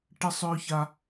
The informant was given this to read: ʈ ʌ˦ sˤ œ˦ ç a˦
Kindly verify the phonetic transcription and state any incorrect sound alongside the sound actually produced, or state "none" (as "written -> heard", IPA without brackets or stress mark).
ʌ˦ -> ə˦